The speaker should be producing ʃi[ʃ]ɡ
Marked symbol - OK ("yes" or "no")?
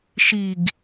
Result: no